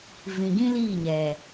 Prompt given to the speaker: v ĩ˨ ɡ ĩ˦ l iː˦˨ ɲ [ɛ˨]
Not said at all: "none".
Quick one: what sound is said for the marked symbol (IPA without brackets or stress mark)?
ɛ˨